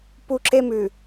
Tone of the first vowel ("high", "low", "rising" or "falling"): high